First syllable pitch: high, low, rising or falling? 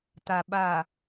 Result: low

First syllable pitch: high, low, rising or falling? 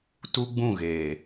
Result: high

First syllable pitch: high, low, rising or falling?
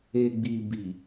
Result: low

